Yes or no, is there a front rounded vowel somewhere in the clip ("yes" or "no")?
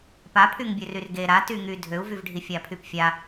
yes